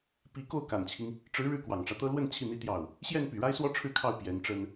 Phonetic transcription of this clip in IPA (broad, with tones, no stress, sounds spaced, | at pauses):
p i˧˥ k o˥˩ ʊ̯ k a˨˩ n t͡ɕʰ i˦ ŋ | ʈ͡ʂ ɻ̩˧˥ ɻ ɻ̩˥˩ k w ɑ˨˩ ŋ ʈ͡ʂ ä˦ t̪ ɤ˥ l w ə˥˧ n t͡ɕʰ i˥˩ n̪ i˥ t̪ j ɑ˥˩ ʊ̯ | ɕ j ɛ˥˩ n p y˨˩ ɻ a˥ ɪ̯ s w ɔ˥ ʈ͡ʂʰ ɻ̩˥˧ kʰ ɑ˥˩ ʊ̯ p j ɛ˧˥ n ʈ͡ʂ ə˥ n